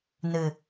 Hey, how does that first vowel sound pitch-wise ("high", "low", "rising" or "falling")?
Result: low